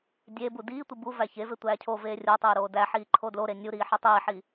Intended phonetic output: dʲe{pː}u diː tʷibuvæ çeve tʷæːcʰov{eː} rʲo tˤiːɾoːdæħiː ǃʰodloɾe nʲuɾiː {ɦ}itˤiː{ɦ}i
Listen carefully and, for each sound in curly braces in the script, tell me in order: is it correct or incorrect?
incorrect: b, correct, incorrect: ħ, incorrect: ħ

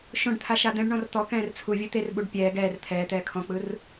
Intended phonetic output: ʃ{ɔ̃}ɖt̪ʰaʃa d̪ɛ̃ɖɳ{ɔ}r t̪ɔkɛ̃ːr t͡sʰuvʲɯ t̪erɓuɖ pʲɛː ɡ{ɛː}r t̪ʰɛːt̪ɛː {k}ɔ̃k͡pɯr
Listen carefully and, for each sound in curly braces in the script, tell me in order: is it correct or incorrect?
incorrect: õ, incorrect: ɔ̃, correct, incorrect: kʰ

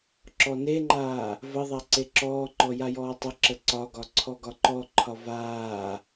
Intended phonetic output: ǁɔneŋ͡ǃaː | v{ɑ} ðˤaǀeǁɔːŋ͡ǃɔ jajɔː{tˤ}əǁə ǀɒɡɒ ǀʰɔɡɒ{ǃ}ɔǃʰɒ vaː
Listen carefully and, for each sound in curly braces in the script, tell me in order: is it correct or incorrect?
incorrect: ə, correct, correct

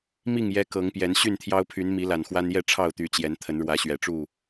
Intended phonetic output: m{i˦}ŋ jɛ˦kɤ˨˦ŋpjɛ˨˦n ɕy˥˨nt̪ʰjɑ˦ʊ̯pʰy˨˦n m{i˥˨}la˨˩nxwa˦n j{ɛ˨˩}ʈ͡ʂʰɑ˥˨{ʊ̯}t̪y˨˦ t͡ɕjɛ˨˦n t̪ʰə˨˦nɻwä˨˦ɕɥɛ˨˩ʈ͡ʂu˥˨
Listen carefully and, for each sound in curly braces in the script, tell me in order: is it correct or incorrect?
incorrect: i˥˨, incorrect: i˨˦, incorrect: ɛ˥˨, correct

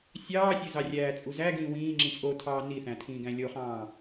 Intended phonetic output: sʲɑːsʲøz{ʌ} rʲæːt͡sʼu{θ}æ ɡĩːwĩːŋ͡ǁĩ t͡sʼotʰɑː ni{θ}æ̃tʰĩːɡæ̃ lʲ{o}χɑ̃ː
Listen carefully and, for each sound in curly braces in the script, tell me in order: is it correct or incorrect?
incorrect: ɑ, incorrect: z, correct, correct

